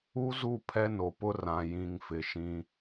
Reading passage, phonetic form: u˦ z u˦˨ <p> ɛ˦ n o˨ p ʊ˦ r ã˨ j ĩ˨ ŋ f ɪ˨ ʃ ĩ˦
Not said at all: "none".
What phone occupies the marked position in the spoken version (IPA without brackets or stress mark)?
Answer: pʰ